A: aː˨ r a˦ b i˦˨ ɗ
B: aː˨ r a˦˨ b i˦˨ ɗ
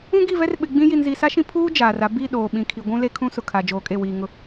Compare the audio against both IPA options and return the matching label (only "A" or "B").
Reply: A